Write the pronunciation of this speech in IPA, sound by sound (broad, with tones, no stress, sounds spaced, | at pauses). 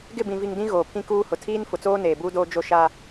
ɡ ɪ˦˨ b ĩ˨ v i˨ ŋ d ĩ˦ ɣ oː˨ pʰ ĩ˦ k uː˦ h ʊ˨ tʰ iː˦ n f ʊ˨ t͡s oː˦ n eː˨ b uː˦ d oː˦ d͡ʒ o˦ ʃ a˦